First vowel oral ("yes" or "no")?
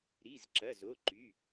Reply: yes